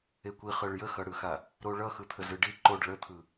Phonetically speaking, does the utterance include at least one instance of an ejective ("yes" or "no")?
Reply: no